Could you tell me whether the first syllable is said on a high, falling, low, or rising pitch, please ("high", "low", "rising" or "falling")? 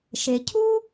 low